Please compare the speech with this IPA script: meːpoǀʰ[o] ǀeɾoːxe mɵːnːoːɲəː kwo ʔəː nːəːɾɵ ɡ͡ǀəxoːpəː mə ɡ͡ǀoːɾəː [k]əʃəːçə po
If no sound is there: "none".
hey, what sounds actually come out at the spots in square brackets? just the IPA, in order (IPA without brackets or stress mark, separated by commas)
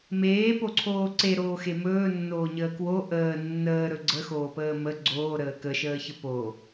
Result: oː, k